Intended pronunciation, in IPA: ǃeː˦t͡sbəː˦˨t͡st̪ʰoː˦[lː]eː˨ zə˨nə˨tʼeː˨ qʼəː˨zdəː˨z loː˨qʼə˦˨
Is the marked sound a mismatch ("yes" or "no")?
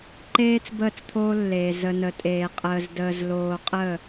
no